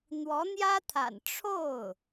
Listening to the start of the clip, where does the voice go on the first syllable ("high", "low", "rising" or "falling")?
rising